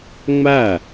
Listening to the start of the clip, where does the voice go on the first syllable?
falling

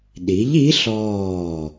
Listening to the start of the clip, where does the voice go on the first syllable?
rising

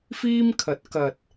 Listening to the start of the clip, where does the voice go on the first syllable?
high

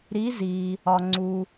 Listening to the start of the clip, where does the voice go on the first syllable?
rising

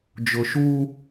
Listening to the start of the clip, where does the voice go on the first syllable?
low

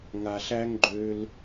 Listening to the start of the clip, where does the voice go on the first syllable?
low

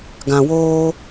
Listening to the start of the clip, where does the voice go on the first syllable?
low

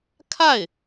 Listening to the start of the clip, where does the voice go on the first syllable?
falling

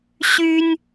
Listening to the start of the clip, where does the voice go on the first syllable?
high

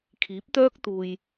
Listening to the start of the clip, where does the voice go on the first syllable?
rising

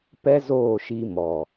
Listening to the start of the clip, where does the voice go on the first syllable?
high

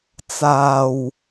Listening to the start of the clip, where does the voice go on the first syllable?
low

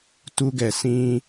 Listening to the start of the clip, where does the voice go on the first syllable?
high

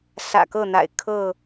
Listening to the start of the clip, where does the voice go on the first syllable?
low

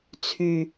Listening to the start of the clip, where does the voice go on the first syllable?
low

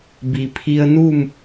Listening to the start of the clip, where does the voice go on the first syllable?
low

